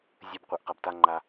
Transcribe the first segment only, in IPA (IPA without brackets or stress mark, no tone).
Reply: zʲ